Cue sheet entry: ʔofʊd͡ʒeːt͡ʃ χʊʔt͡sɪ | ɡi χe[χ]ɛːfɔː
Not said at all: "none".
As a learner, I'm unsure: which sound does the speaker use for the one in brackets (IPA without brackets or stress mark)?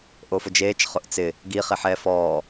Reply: ħ